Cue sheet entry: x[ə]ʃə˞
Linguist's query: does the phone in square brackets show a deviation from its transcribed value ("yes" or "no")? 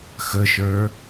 no